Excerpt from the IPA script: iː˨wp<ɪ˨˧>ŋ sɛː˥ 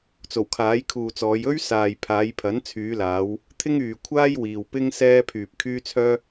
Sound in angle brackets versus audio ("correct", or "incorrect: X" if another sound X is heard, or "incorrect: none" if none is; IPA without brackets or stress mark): incorrect: ɪ˥